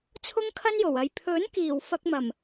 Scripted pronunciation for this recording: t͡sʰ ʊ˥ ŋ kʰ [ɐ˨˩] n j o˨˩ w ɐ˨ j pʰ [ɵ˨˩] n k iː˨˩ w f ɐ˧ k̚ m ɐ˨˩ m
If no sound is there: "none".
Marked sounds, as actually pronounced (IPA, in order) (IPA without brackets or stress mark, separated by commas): ɐ˥, ɵ˨˥